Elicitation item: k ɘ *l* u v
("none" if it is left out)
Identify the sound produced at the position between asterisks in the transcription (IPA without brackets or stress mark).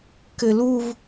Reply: l